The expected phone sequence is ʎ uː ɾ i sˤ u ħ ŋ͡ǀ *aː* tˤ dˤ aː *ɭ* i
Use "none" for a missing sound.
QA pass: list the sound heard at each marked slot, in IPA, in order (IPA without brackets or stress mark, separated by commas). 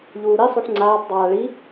aː, ɭ